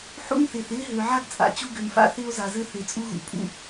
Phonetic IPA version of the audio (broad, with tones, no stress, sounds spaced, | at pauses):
ħ ṵ˦ n θ ɪː˨ θ ɪː˦ ɦ ø˨ ʕ a˦ ɡ t͡sʼ a̰˨˦ t͡ɕ u˦ ɡ ø˨ m f a̰˦ θ ɪː˦ o̯ z a˨ z ɘ˦ θ ɪː˨ t͡sʼ u˦ ɣ ṵ˨ pʼ ṵ˦